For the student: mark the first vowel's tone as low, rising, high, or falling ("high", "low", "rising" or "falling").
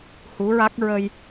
rising